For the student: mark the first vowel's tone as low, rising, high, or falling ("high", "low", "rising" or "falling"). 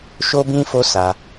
high